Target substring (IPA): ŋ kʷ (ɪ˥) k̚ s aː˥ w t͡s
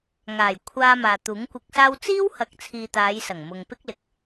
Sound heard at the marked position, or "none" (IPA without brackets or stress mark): ɪ˧